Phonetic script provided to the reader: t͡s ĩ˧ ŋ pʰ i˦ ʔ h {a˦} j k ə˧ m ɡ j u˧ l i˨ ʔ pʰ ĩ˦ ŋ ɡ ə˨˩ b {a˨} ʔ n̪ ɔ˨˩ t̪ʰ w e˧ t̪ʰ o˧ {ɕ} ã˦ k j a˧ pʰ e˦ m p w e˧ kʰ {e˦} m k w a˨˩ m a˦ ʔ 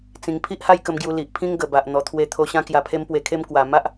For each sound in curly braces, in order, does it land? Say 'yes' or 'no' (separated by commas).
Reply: no, yes, yes, yes